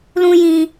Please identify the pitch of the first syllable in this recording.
high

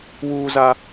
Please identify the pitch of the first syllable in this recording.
high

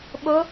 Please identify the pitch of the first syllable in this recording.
rising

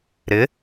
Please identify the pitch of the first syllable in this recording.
rising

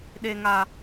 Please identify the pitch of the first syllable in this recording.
low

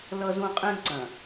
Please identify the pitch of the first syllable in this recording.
high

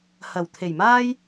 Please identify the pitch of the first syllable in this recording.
low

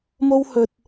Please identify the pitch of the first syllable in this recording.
high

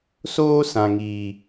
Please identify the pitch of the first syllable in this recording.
high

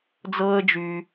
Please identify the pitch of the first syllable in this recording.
high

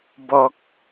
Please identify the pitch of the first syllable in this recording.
low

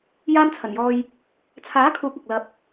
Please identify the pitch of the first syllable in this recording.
high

